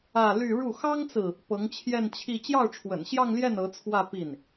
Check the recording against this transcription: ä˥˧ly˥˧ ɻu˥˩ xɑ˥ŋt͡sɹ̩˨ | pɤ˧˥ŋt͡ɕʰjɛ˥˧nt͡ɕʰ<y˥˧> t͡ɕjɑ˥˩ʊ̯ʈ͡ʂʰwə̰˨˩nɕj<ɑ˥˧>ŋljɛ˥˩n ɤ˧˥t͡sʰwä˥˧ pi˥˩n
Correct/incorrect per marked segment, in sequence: incorrect: i˥˧, correct

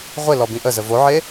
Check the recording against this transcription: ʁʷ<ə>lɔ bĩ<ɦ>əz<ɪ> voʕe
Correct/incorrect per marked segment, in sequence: incorrect: ɪ, incorrect: ʔ, incorrect: ə

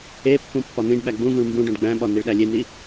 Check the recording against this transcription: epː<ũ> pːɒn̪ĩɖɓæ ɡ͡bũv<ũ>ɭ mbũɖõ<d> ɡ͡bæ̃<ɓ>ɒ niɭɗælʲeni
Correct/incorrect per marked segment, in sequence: correct, correct, incorrect: ɖ, correct

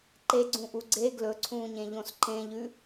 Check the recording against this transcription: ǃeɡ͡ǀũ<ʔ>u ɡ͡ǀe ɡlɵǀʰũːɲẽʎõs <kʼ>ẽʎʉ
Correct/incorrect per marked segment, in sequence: correct, incorrect: ǃ

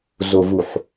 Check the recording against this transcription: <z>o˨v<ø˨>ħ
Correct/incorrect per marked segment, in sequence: correct, incorrect: u˨

